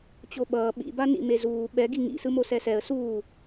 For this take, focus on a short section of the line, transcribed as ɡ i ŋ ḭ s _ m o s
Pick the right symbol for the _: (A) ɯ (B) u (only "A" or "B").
A